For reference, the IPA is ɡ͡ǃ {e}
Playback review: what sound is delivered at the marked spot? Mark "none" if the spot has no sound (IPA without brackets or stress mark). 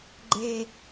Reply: e